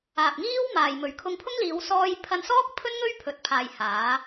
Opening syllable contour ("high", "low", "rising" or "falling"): low